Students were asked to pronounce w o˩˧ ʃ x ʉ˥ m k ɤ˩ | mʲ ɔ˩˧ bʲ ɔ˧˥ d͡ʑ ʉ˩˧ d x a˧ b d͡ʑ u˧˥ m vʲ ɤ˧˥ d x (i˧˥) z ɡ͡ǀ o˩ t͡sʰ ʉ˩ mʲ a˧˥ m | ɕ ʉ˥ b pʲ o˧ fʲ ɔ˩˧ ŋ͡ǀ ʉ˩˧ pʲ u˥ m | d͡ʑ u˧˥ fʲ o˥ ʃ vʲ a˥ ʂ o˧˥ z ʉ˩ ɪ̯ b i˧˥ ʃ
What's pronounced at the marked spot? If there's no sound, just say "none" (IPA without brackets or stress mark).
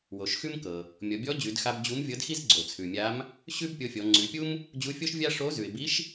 i˥